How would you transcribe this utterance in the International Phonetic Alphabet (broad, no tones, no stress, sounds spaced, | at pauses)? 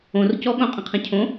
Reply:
õ r c ɔ ɠ õ qʼ ə̃ qʰ ə̃ cʰ õ